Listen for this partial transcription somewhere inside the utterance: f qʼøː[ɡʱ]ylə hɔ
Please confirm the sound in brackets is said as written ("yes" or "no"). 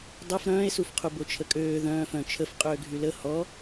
yes